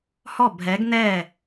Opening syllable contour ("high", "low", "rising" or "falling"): falling